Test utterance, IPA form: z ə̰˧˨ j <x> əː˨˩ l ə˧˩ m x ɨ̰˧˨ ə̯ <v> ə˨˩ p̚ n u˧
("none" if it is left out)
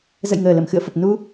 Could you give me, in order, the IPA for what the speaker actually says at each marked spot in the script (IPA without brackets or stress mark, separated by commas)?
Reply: ŋ, f